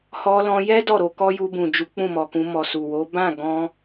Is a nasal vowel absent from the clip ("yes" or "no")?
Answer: no